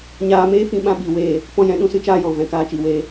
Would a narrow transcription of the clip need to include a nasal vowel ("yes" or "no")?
yes